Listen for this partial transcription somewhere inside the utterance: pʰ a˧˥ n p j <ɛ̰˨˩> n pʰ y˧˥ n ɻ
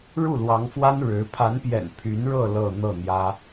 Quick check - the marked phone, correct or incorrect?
correct